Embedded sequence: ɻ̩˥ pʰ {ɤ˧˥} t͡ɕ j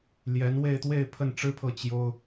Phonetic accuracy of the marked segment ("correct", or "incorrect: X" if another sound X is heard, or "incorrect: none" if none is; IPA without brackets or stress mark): incorrect: ɤ˥˩